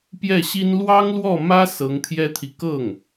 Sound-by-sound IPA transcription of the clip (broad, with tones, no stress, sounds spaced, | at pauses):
p j ɛ˥˩ ɕ i˥ n l w ɑ˥ ŋ l w ɔ˥˩ m ä˥ s ɤ˧˥ ŋ t̪ʰ j ɛ˥ t̪ʰ i˨ k ɤ˥˩ ŋ